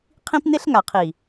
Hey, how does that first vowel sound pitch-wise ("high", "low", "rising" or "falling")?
high